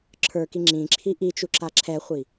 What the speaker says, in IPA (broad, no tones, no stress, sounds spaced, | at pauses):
ǁʰ ə˞ k i ŋ͡ǁ ĩ ǁʰ i ʔ i t͡ʃ u ǁ a ǁʰ ɛ χʷ i